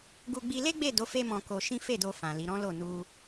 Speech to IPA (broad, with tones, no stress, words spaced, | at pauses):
ɡu˧ɡ͡bi˧le˦ ɡ͡be˦˨do˨˦ fe˦mɔ̃˧ko˧ʃĩ˦ fe˦˨do˧ fã˨ li˨˦ɾɔ̃˦lo˦˨ nu˧